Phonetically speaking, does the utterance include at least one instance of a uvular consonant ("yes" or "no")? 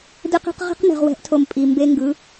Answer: yes